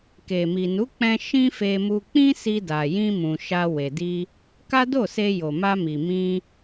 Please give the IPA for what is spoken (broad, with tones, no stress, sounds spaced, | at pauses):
k e˨ m i˨ n u˨˦ k͡p ɛ̃˦ ʃ ĩ˦ f e˧ m u˧ k͡p ĩ˦ s i˧ d a˨ j ĩ˧ m ũ˨ ʃ a˧ w e˨ d i˧ | k a˦ d o˦˨ s e˧ j o˨ m a˧ m i˨ m ĩ˧